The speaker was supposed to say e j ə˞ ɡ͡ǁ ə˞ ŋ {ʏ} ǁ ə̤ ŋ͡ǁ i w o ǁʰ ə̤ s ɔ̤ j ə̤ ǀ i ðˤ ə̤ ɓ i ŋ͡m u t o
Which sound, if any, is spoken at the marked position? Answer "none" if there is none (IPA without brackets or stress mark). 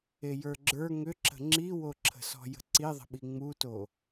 ʏ